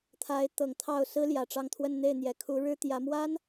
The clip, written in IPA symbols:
t̪ʰ a˧˥ ɪ̯ t̪ ɤ˨˩ ŋ t̪ʰ ɑ˥˩ ʊ̯ s ɹ̩˥ l j ä˨˩ ʈ͡ʂ ɑ˥˧ ŋ t̪ʰ w ə˥˧ n n̪ e˥˩ ɪ̯ n̪ j ɛ˨˩ kʰ u˧˥ ɻ ɻ̩˥ t̪ j ä˧˥ m w a˥ n

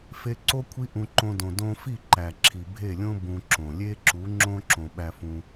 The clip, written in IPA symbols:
f e˧ ǀ o˦ kʷʰ i˦ ʔ ũ˧ ǃ õ˧ d õ˨ d õ˧ f i˦˨ ǃ æ˨ ǁʰ i˨ bʱ e˦˨ lʲ õ˦ b ũ˧ ǁ õ˨ lʲ e˦ ǁ u˨˦ ŋ͡ǁ õ˦ ǁ õ˨ ɓ æ˧ f ũ˧

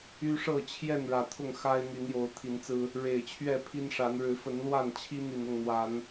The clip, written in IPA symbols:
y˦ ʂ ɤ˥˨ t͡ɕʰ j ɛ˥˨ n ɻ ä˨˩ t̪ʰ ʊ˥˨ ŋ x a˦ ɪ̯ n̪ y˨˦ n j o˨˦ ʊ̯ t̪ʰ i˨˦ n t͡s ɹ̩˦ | ɻ e˨˩ ɪ̯ t͡ɕʰ ɥ ɛ˥˨ pʰ i˦ n ʂ a˨˦ n ɻ ɻ̩˨˦ f ə˨˦ n l w a˥˨ n t͡ɕʰ i˦ n̪ i˨˩ n ʊ˥˨ ŋ n̪ w a˨˦ n

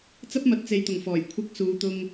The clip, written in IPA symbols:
t͡s ɐ˥ p̚ m ɐ˨ t̚ t͡s e˨ j t̪ ʊ˨˩ ŋ f ɔː˨˩ j kʷʰ ɪ˧ k̚ s uː˨˧ t̪ ʊ˧ ŋ

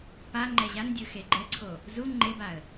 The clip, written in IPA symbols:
p a ŋ͡ǃ ɛ ʑ a n dʲ ɯ x e ɡ͡ǃ ɛ ǀʰ o | z u ŋ͡ǃ e b a ə̯

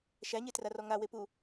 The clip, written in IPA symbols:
ʃ æ ɲ e t r a r ɔ ŋ a w e p u

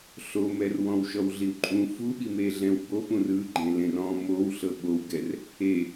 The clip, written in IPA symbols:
ɬ o m ɛ r w ɔ̃ w ʃ ɔ w ɮ i w ǃʼ ũ f u ɓ i m e ɮ ɛ̃ w b o p ũ r ɯ ɡ͡ǃ ẽ l ẽ r ɔ̃ m o w ɬ ɤ ɓ o w ɡ ɛ r | e

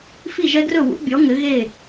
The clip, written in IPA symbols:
f i˥˩ ʒ ɛ˦˥ ɡ r ɵ˥˩ w ṵ˨˥ bʲ ɔ˨˥ ŋ ɘ˨˥ ɣ e˥˩

